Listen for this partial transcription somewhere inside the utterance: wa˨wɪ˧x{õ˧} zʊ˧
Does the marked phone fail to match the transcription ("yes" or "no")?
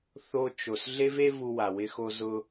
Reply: yes